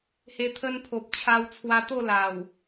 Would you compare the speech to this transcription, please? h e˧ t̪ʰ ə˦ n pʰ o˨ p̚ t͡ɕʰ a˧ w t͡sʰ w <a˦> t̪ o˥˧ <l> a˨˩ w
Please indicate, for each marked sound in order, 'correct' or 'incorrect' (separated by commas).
incorrect, correct